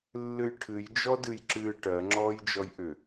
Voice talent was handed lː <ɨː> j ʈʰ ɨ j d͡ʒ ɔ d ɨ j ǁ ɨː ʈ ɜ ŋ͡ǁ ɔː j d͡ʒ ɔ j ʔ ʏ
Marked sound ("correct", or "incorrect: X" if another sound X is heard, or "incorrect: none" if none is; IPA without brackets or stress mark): incorrect: ɨ